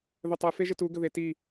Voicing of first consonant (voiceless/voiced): voiced